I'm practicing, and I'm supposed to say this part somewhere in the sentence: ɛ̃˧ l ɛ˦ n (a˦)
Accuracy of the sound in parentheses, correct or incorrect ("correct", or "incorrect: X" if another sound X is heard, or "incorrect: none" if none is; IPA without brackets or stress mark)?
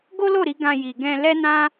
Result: incorrect: ã˦